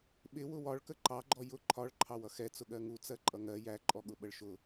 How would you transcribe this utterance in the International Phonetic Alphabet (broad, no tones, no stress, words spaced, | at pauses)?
ɓɪ wʊwɒɭkə ǃɑɡ͡ǃɔ jʊ ǃʰɒɭ ǃʰɑwʌxɛ t͡sʊɠɜŋu t͡sɜǃʼʌŋɜ jæǃʼɔ ɠʊɓəɭʃʊ